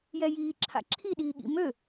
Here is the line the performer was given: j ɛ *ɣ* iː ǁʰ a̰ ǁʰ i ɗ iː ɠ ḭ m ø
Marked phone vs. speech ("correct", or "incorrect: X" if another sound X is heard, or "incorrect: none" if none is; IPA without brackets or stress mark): incorrect: j